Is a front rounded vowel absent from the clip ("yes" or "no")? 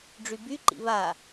no